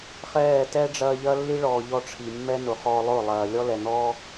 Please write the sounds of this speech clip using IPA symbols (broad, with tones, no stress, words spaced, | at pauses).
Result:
χɛː˦˨ tɛ˦ɖ͡ʐɐː˧ʎɐ˦ lːi˦ɭɔː˨ ʎɔ˧ʈ͡ʂʰi˨mːɛ˦ nʊ˨χɔː˧lˠʊ˦˨ lˠɐː˨ lʲɔ˦ lɛ˨n̪ɔː˦